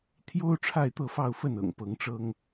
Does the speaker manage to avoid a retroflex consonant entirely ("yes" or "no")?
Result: no